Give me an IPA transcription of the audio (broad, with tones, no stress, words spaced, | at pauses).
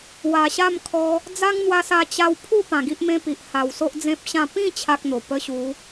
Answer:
wa˨˩ɕa˥˧mkʰɔ˧ | d͡za˦ŋn̪wa˧sa˧ t͡ɕa˧wpʰu˥˧ pã˨˩ɡi˦ʔmẽ˦pi˨ʔ ha˨˩wso˦ʔd͡zẽ˦p̚ɕã˥˧ pĩ˥˧ t͡ɕʰa˦k̚n̪o˨˩ pə˦ɕu˨˦